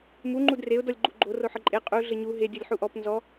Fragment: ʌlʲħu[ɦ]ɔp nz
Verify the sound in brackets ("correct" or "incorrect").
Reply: incorrect